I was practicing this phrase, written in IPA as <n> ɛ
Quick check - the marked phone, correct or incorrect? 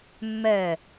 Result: incorrect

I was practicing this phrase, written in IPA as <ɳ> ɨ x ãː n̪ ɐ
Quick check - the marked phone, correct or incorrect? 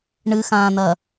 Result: correct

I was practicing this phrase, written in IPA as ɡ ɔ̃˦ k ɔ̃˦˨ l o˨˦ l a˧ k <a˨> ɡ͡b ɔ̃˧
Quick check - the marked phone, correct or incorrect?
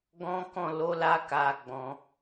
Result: correct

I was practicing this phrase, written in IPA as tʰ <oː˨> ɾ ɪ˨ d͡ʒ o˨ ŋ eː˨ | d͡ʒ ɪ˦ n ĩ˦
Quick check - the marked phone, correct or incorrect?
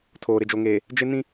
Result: correct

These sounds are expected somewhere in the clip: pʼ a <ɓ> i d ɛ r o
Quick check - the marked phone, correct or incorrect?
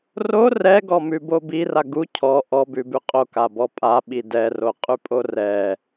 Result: correct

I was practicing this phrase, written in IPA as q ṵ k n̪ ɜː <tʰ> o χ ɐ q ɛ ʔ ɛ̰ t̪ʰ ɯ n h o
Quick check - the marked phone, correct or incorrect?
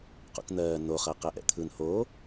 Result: incorrect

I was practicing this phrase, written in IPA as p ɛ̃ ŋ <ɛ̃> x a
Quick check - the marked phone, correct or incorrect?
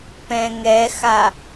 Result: incorrect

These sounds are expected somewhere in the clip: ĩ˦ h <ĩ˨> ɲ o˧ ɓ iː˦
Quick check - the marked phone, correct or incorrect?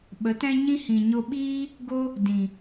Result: correct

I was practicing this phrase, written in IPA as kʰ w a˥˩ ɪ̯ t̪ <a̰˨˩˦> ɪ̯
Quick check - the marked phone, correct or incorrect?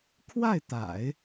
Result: correct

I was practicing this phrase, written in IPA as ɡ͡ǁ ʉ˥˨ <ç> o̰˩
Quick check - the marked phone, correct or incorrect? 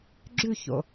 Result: correct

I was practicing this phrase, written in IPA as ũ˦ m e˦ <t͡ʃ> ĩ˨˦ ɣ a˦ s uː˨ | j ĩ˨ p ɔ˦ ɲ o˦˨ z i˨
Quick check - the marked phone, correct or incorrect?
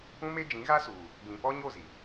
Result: incorrect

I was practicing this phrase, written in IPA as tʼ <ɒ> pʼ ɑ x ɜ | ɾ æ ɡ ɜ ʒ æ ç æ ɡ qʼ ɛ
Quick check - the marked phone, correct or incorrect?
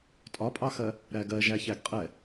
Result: correct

